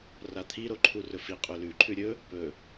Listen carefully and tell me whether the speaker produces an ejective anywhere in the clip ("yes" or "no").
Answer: yes